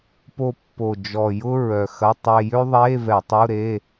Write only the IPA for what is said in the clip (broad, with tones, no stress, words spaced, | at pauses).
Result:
po˧pːo˨˩ d͡ʒɔ˨˩jʊ˥ ɹœ˨˩xɐ˧˥˧ tˤe˧jø˥ðˤeː˧˥˧vɛ˧˩˧ tˤu˧˥˧ɾeː˧˥˧